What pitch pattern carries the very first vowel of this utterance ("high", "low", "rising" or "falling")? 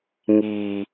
low